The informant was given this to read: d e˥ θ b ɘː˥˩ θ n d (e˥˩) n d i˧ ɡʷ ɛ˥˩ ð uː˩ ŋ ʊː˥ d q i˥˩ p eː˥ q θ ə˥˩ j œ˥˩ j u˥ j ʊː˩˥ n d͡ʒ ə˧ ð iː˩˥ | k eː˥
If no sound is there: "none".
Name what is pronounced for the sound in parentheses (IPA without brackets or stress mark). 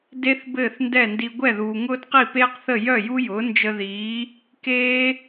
ɛ˥˩